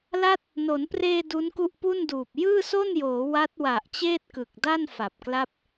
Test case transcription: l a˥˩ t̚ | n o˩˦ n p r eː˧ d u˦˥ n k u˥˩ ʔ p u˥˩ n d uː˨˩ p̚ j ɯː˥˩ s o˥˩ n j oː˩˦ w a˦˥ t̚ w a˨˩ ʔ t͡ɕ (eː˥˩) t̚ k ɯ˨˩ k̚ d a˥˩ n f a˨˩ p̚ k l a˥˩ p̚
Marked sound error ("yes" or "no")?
no